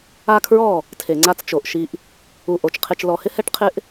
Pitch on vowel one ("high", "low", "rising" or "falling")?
high